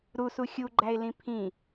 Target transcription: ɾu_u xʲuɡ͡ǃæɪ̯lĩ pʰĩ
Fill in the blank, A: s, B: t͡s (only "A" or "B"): A